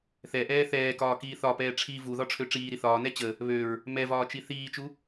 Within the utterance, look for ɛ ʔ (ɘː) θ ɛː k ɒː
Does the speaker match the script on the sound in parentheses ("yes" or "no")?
no